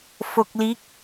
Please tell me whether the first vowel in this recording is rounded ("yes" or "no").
yes